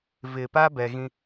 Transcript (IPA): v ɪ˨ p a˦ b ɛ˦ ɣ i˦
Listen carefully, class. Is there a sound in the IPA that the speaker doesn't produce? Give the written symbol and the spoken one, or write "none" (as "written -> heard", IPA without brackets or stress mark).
i˦ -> ĩ˦